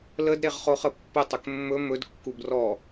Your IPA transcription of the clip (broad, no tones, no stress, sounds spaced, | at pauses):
l ə d ɾ e ʁ χ o χ ə pː ə tˤ ɵ k mː ɵ m ɵ d kː u b r ɔ